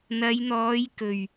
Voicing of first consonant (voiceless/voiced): voiced